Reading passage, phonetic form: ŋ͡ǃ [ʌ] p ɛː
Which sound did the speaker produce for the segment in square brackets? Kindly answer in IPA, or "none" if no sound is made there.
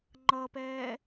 ʌ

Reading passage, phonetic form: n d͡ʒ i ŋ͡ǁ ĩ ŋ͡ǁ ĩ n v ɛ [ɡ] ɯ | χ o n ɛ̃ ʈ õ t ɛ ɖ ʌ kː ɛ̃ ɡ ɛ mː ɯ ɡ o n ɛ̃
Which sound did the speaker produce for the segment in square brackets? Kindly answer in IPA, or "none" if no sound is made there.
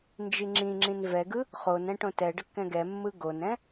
ɡ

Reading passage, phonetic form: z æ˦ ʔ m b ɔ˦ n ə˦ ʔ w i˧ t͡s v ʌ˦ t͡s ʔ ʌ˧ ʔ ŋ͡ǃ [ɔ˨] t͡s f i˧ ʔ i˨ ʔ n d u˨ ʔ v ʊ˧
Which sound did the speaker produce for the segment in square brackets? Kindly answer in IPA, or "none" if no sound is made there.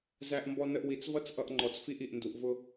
ɔ˨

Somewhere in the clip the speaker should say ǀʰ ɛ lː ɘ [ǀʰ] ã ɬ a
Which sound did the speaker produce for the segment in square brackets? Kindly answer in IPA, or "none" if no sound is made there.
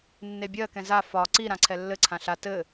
ǀʰ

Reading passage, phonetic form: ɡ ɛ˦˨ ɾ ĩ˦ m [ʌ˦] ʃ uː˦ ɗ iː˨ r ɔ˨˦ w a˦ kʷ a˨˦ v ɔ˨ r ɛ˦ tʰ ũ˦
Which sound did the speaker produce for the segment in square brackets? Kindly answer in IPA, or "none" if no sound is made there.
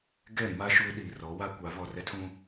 a˦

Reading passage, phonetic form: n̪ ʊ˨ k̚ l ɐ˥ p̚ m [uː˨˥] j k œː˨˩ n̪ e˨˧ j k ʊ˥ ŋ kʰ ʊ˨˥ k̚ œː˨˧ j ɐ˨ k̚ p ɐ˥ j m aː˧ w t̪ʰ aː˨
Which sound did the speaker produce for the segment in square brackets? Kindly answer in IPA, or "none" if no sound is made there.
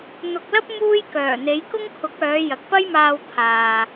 uː˥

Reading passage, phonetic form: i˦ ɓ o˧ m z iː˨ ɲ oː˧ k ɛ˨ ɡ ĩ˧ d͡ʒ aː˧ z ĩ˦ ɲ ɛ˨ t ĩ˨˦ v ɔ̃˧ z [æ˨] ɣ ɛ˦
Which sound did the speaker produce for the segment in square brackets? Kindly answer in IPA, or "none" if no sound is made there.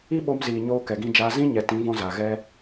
a˨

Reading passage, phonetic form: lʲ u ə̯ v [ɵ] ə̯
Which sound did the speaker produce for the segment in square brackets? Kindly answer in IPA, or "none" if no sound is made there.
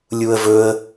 ɵ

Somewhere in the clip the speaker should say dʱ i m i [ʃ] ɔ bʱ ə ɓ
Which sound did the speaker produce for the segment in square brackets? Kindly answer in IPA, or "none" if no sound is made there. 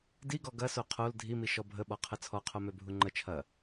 ʃ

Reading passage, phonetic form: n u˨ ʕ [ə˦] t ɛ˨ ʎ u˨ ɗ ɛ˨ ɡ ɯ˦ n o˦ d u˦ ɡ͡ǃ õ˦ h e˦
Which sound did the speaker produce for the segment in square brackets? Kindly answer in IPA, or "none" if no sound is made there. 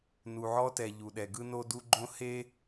ɔ˦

